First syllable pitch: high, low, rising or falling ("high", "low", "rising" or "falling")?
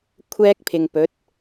high